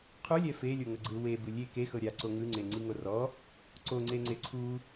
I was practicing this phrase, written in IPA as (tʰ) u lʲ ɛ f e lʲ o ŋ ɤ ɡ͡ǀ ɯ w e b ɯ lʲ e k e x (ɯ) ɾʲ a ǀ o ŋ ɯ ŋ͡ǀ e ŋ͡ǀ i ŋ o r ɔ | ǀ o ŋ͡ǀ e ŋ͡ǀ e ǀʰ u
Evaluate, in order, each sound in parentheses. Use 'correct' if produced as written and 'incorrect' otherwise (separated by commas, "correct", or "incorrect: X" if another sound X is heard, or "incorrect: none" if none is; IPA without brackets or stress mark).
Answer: incorrect: qʰ, incorrect: ɤ